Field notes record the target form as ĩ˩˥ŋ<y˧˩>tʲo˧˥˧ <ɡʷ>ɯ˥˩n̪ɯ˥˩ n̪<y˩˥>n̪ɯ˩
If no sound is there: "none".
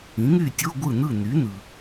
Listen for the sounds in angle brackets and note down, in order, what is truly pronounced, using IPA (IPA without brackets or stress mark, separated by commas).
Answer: y˥˩, ɡʷ, y˩˥